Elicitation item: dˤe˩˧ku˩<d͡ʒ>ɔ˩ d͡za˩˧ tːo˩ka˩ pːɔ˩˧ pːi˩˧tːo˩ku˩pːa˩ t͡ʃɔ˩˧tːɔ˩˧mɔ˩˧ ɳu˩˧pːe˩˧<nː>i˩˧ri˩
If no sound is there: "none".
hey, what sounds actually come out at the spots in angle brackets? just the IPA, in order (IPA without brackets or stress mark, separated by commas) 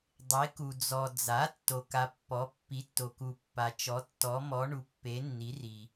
d͡z, nː